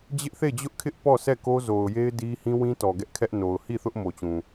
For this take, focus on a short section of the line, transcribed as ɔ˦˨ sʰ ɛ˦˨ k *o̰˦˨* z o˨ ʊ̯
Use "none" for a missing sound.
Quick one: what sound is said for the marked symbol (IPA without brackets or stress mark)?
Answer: o˦